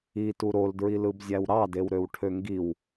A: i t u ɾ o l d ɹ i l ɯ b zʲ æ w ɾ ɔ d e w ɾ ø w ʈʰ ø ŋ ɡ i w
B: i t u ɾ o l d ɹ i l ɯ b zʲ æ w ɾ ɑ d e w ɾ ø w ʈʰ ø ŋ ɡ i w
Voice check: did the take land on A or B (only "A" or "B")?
B